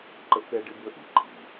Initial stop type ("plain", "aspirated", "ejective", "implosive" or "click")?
click